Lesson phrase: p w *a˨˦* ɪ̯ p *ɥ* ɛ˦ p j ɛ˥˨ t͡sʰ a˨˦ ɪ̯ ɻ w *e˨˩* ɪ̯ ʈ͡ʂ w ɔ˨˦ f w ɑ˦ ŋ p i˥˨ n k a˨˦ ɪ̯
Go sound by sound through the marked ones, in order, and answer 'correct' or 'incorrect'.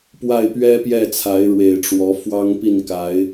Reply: incorrect, correct, correct

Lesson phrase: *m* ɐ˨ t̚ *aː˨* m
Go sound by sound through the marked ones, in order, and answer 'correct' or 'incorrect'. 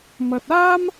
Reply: correct, incorrect

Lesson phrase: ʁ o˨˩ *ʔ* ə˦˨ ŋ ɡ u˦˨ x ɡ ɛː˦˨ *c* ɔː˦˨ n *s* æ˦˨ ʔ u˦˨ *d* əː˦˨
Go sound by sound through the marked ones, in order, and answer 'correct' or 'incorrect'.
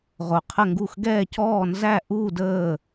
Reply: incorrect, correct, incorrect, correct

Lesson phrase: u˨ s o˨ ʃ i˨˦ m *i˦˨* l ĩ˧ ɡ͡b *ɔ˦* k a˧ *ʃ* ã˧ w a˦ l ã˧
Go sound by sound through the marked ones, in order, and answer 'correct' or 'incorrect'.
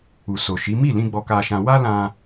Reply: correct, incorrect, correct

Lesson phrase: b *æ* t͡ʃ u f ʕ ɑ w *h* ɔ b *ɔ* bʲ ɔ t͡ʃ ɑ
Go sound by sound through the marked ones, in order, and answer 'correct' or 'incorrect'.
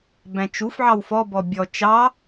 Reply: incorrect, incorrect, correct

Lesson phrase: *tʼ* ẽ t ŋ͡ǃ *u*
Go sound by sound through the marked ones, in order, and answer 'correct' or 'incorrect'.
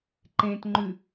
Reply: incorrect, incorrect

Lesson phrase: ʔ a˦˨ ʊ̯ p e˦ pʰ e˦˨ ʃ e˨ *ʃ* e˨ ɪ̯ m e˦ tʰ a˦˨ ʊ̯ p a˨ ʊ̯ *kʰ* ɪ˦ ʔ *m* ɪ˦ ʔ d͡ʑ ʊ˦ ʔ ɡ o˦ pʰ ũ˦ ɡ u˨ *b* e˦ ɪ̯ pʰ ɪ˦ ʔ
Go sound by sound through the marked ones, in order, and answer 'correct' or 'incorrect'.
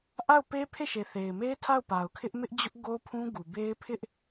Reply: incorrect, correct, correct, correct

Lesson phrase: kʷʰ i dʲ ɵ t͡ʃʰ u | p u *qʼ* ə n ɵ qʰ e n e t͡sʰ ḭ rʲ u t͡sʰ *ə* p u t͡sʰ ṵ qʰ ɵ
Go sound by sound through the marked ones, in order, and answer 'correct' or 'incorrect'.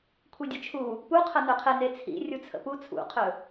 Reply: incorrect, incorrect

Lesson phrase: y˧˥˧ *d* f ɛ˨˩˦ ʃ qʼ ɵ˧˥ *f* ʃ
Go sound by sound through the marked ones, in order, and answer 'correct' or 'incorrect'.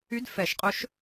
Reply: correct, incorrect

